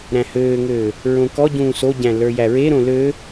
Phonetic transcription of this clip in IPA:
ɾ æ̃ h øː ŋ øː | ɹ õ k ɔ ɟ ũː s o ɟ æ̃ l ə˞ j æ ɹ e ɾ õ l ø

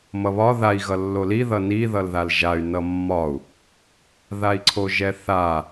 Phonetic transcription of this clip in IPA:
m ʌ β ɒ ð a i̯ ɣ ʌ lː o l i ð ʌ n i ð ʌ l ð a l ʒ a y̯ n ʌ mː ɒ u̯ | ð a i̯ ǀʰ o ʒ ɛ θ a

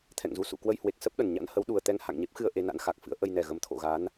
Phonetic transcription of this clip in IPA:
t̪ʰ ɛ̰˧˨ ŋ z u˨˦ s ṵ˧˨ k w ə˧ j h w e˨˩ k̚ s ə˦˥ p̚ ɗ ə˨˩ n ɲ a̰˧˥ n h ə˨˦ w ɗ u˨˩ ə̯ t̪ ɛ˧ ŋ h a̰˧˨ ŋ ɲ e˦˥ p̚ x ɨ˧ ə̯ ʔ e˧ n a̰˧˥ n x a˨˩ k̚ f ɨ̰˧˥ ə̯ ʔ ə˧ j n ɛ˨˩ ɣ ə˨˦ m t̪ʰ o̰˧˨ ɣ a˨˦ n

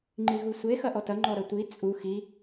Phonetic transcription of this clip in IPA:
ŋ͡ǃ i ɣ u sʷ e x ɐ ʔ ɔ t ɐ ŋ͡ǃ ɔ ɾ ɐ tʷ i t͡sʼ u x i

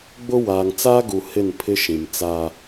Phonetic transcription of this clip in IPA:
ɡ͡b ʊ˦ w aː˨ ŋ t͡s aː˦ ɡ u˨ h ɪ˦˨ n pʰ ɪ˦ ʃ ĩ˨ m t͡s a˦

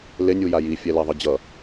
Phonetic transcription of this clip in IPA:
l e nʲ u j a j i fʲ ɛ l ɛ ðˤ ɯ d͡ʑ ʌ

